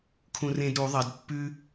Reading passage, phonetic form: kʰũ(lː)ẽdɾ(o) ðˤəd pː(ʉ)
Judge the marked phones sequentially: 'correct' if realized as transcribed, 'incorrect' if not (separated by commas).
incorrect, incorrect, correct